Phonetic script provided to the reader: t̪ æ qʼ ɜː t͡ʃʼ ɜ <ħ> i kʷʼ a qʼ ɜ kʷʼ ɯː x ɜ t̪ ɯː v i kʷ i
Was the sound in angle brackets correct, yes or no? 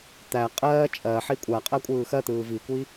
yes